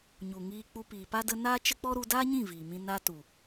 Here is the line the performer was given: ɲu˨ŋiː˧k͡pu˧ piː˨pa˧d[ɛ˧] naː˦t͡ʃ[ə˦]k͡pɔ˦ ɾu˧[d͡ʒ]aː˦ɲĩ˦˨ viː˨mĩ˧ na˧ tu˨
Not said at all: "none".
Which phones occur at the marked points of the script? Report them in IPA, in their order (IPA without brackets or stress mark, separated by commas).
ə˧, ə˦, d